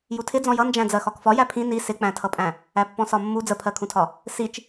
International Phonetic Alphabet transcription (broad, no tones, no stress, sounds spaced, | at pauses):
j u tʰ ɪ d͡z ɔ̃ j ʌ n d͡ʒ æ̃ d͡z ɜ x ɒ k f ɒ j æ pʰ ĩ n i s ɪ k͡p æ̃ tʰ ʌ pʼ æ̃ | æ pː ɔ̃ s ɒ mː u d͡z ə pʰ ɜ kʰ ũ tʰ ɒ | s i t͡ʃ